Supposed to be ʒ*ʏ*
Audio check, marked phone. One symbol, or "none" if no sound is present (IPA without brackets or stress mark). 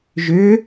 ʏ